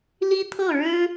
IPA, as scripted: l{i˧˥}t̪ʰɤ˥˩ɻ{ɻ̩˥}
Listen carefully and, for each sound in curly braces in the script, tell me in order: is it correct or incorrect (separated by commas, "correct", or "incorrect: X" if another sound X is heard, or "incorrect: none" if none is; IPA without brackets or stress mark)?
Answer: incorrect: i˥, correct